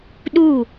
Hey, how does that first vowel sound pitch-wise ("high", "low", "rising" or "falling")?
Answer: falling